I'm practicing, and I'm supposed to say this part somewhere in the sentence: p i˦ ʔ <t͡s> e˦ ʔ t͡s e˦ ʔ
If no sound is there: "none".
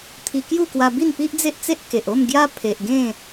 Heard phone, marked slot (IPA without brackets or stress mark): d͡z